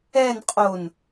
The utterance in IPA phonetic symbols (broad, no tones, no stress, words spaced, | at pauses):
ɛn qʼon